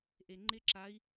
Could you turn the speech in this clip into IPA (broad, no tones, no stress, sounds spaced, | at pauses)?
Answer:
ʔ e ŋ͡ǃ ɪ ǁ a i̯